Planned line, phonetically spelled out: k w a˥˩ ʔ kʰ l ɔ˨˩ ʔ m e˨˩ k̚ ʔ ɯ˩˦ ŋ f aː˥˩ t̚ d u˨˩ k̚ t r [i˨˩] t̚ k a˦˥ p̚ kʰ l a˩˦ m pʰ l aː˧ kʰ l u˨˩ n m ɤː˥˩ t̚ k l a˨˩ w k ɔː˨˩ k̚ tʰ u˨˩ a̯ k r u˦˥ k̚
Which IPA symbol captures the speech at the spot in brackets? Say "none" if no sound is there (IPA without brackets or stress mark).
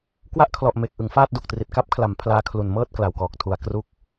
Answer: i˨˩